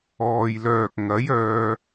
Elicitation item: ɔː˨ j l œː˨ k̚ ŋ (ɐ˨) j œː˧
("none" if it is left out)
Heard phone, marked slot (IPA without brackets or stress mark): ɐ˨˥